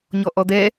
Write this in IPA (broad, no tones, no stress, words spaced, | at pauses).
ɲɔʔɔd̪ɛ